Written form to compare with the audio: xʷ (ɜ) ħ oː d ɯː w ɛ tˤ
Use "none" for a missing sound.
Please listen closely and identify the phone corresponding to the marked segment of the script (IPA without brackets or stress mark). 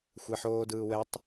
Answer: ɛ